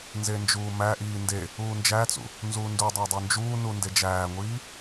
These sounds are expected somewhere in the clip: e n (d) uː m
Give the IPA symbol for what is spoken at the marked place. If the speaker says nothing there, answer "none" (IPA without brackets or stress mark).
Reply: d͡ʒ